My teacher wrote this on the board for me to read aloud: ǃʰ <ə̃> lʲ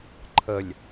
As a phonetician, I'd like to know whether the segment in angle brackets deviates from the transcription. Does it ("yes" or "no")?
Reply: yes